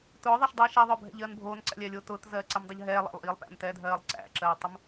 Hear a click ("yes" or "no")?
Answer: yes